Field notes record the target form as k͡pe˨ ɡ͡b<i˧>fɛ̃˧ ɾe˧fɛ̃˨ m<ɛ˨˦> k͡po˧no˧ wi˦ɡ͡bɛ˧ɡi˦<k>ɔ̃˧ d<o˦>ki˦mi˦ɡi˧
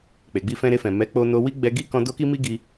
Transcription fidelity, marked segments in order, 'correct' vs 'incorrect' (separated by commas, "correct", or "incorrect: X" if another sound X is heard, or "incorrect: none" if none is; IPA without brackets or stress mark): correct, correct, correct, correct